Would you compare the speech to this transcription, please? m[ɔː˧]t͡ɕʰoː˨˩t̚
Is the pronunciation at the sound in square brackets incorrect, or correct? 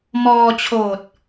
correct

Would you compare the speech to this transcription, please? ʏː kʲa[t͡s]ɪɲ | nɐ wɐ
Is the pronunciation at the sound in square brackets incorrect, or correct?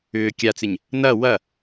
correct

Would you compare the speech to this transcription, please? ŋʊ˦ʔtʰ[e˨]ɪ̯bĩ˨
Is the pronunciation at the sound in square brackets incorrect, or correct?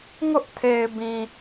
correct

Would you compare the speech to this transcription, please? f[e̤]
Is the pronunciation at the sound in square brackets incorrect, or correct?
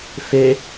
incorrect: e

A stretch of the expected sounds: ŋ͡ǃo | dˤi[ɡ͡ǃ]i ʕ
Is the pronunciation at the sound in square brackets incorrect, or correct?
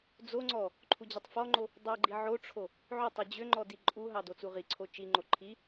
correct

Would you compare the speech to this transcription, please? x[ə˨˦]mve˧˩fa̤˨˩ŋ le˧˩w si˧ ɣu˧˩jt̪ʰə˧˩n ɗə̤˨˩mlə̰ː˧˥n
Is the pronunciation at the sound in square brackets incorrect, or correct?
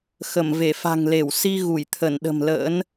incorrect: ə˧˩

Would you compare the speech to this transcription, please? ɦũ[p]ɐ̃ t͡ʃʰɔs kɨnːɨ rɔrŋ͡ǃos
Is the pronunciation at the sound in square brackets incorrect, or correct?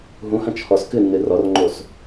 incorrect: h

